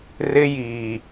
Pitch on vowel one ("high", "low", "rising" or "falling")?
high